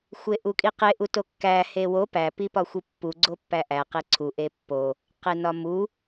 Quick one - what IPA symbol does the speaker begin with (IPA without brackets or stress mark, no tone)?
xʷ